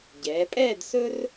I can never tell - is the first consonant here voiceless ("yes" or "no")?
no